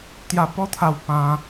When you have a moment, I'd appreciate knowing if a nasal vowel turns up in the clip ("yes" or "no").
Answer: yes